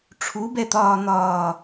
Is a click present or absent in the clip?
absent